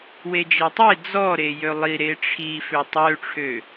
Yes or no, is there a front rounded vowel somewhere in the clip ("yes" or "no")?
yes